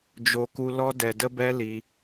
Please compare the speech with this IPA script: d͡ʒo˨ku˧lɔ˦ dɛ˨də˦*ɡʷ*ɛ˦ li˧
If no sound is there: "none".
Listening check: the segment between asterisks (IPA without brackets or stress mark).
b